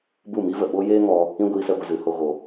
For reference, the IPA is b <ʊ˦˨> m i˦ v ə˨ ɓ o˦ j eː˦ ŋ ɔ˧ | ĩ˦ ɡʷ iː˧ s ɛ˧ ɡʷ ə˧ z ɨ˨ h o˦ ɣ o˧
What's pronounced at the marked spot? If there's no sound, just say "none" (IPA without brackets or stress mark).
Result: u˦˨